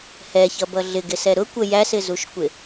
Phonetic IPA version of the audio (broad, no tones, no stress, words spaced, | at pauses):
hɛçʌbʌ ɮɪɡɪsɛ ɾʊkʷə jæsɪzuʃkʷɪ